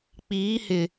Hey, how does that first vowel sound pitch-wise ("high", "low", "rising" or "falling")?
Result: rising